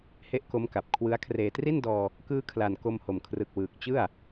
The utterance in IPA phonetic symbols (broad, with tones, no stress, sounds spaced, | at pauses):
h e˦˥ ʔ k o˦˥ m k a˨˩ p̚ kʰ w ɯ˦˥ a̯ kʰ r eː˨˩ t r i˥˩ n d ɔː˧ | k ɯː˦˥ kʰ l a˨˩ n k o˧ m h o˨˩ m kʰ r ɯ˨˩ k̚ w ɯː˨˩ k̚ t͡ɕ ɯ˥˩ a̯